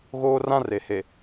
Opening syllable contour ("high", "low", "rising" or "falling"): high